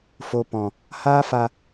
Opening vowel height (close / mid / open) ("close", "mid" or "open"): mid